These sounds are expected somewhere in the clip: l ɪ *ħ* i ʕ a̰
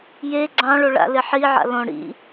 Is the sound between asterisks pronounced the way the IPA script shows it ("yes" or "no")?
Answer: yes